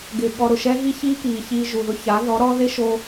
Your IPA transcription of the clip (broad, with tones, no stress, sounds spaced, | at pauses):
ɡ ɪ˨ ɠ ɔ˧ ɾ ʊ˨ ʃ ɛ˦ ɣ i˦ ç i˦ k i˨ ç i˧ ʒ u˨ ð ʊ˧ ç a˨˦ ð ɔ˨˦ ɾ ɔ˦ ð e˦ ʃ o˧